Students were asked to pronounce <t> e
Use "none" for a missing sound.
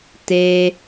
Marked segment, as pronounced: t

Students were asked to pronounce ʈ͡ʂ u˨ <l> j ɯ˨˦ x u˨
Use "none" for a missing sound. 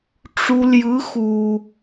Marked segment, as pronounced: l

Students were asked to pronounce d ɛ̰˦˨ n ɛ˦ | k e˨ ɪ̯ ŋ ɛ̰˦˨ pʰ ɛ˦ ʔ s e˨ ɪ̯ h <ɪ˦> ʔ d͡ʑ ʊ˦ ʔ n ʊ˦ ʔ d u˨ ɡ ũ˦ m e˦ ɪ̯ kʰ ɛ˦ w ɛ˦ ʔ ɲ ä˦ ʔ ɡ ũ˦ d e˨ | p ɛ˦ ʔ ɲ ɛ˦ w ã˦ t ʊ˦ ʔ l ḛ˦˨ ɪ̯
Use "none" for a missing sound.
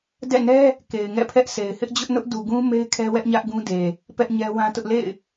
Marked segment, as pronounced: ɪ˦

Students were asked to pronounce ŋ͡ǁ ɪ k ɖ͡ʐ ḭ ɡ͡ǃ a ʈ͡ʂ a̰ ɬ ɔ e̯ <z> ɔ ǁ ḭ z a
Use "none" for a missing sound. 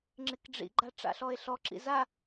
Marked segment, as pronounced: ɬ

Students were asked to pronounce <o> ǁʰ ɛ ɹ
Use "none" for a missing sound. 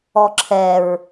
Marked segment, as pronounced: ɔ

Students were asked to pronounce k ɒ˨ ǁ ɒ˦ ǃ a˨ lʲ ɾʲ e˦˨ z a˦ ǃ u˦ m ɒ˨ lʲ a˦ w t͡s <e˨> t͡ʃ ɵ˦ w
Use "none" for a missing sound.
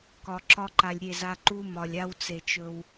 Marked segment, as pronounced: e˨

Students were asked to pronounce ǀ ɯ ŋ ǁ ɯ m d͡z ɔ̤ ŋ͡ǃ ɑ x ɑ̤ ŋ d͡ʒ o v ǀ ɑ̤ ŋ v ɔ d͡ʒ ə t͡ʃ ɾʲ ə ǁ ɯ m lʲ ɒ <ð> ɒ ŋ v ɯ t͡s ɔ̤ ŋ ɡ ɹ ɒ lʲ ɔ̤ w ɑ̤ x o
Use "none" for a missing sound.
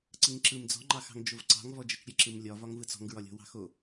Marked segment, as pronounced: v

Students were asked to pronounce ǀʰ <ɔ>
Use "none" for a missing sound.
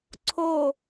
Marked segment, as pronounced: o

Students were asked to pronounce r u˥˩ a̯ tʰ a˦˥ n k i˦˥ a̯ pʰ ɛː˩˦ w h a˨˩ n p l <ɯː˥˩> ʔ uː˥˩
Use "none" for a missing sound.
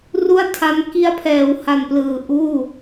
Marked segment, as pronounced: ɯː˨˩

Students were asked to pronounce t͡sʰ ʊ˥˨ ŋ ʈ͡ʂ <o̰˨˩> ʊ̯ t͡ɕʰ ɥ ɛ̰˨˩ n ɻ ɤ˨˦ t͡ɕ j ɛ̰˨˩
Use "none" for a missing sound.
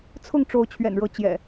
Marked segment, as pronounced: o˨˦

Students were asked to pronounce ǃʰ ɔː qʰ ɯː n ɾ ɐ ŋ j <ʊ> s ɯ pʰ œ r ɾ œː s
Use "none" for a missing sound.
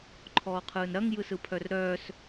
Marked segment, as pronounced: ɯ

